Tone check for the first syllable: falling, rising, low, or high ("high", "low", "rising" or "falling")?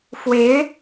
rising